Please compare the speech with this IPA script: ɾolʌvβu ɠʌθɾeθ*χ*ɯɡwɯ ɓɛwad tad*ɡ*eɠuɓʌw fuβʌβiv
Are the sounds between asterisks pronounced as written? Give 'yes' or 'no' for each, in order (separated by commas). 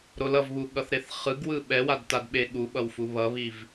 yes, no